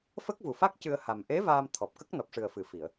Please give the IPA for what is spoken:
f ə˦˥ k̚ v u˨˩ f a˦˥ k̚ c ɨ˧ ə̯ h a˨˩ m ʔ e˧˥ v aː˧ m t̪ʰ ɔ˨˩ p̚ k ə˦˥ k̚ n ɔ˨˩ p̚ ʂ ɨ˨˩ ə̯ f ɨ˨˩˨ f i˨˩˨ ə̯

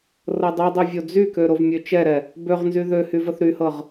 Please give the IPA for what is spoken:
r ɤ dˤ y dˤ ɛ vʲ o d͡z y k ø ɾ o v mʲ ø t͡ʃ ɛ ɾ ɛ | b ø ʁ n z y ð ø h y v ə θ ɾ y h ɤ ʁ

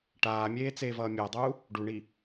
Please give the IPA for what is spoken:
ʈ aː mʲ eː t͡s eː v ʌː mʲ a dˤ uː | ɖ u ɳ iː

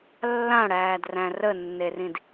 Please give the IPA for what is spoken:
lː ã ɽ æː d r æ̃ r ə nː e r ĩ d

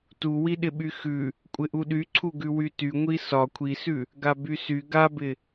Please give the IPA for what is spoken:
t u w i ɗ ɪ ɓ y x ʉ | kʷʼ ɪ ʔ u ɗ y ǀʰ u ɡ ʉ w y t y ŋʷ i s ɒ kʷʰ i s ʉ | ɡ a b y s y ɡ a b ɪ

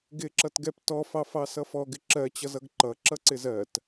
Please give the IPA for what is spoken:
ɡ ɪ ǁ ʌ t ɡ ɛ p t ɔ f ɑ f ɑ s ʌ f ɔ ɡ ɪ ǁ ɜ t͡ɕ ʌ z ʌ ɡ ǃ ʌ ǁ ʌ ǀ ɪ z ɜ t

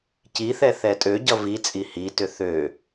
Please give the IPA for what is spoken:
c i θ ɛ θ ɛ tʼ ø ɟ ʌ v i t͡sʼ i h i t ʏ θ ø

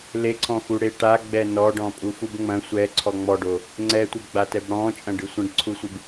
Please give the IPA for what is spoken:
l e ǀʰ ɔ̃ x u ɽ e ʈ a ɡ͡b ɛ n ɔ ɖ ɔ̃ pʼ u f u b ŋ͡m ɐ̃ sʷ ɛ ǀʰ ɔ ŋ͡m ɔ ɖ o | ŋ͡ǀ ɛ tʷ ɛ ɡ͡b a t ɛ b ɽ ɔ̃ t͡ʃʼ ɐ̃ ɖ ɨ sʷ ɐ̃ ɖ ǀʰ u sʷ ɨ b

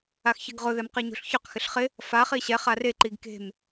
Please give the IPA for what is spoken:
a x ç ɪ ɡ ʁ ʊ ð ɛ m q i ɲ o̤ ɬ ç ʊ q x ɪ ɬ χ ɪ | f a χ i ɕ ɛ χ a r e ǃ i ɡ k e̤ m

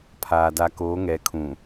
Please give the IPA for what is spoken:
pʰ aː˨ d a˨ k oː˨˦ ŋ ɛ˨ kʰ ũ˨

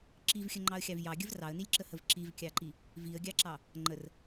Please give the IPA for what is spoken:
ǁ i v xʲ ə ŋ͡ǃ ɑ ə̯ xʲ ɑ v j ɑ ɡʲ ə v r ɑ ə̯ n i lʲ ǁ ə h ə v ǁ i v kʲ ɑ ǃ i | v i ə̯ ɡʲ ɑ ǁ ɑ | ŋ͡ǃ ə r

